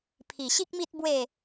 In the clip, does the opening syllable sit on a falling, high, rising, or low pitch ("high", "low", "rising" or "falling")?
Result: low